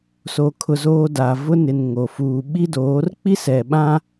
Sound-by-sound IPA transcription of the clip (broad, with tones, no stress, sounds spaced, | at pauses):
s o˨ kʰ ʊ˦ z oː˦ d a˨ v ʊ˦ n ɪ˨ n ŋ o˨ f uː˨ ɓ i˦ d oː˨˦ r k͡p i˦ s ɛ˨ ɓ ã˦